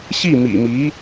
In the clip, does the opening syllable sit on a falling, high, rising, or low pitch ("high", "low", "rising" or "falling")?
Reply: falling